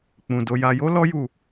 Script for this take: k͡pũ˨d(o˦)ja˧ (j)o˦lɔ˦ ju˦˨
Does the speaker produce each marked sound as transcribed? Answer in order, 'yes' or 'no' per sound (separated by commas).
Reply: no, yes